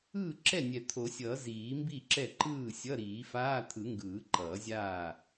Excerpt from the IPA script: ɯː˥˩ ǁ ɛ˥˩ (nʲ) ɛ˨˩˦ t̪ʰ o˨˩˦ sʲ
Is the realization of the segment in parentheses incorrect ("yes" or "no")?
no